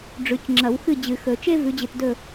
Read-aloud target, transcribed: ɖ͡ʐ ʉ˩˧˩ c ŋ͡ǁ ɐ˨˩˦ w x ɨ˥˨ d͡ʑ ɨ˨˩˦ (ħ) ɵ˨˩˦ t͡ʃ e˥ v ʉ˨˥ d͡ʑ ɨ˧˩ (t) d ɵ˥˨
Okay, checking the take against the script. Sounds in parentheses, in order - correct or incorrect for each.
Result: incorrect, correct

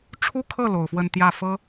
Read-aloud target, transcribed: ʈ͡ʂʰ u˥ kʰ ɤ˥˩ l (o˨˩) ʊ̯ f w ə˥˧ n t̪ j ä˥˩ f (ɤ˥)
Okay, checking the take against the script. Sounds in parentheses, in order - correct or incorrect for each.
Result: correct, correct

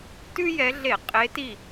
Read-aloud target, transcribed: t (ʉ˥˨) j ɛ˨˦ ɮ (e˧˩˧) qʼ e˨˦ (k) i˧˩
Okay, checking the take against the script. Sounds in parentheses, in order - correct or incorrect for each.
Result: incorrect, correct, incorrect

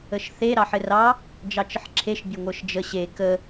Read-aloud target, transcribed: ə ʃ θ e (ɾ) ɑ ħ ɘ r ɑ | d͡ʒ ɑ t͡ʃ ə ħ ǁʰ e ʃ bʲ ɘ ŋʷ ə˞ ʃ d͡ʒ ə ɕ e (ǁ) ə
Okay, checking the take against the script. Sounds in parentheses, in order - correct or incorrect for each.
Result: correct, incorrect

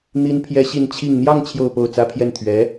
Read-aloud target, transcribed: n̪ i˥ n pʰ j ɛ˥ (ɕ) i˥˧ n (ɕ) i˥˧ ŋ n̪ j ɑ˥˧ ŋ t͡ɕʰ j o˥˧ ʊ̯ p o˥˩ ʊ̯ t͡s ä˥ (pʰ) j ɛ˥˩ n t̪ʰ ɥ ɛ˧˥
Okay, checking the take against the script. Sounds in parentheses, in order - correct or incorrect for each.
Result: correct, incorrect, correct

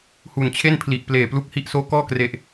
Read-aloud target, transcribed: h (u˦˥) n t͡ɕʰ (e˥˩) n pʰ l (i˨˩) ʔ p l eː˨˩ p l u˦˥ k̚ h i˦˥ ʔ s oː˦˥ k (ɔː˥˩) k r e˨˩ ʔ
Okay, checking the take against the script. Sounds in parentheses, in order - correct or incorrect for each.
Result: incorrect, correct, correct, correct

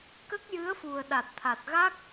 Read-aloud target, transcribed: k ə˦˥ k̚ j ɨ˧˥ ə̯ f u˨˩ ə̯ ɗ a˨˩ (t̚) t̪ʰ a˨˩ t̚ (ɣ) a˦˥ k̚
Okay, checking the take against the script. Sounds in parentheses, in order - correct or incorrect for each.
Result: correct, correct

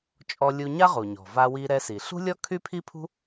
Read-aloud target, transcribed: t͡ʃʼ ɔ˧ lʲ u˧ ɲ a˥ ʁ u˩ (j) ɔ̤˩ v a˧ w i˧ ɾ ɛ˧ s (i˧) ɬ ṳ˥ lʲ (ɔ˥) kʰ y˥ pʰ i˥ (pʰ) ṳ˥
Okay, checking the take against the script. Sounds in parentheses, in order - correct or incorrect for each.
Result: incorrect, incorrect, correct, correct

